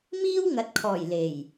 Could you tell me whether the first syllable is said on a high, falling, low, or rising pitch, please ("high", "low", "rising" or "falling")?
high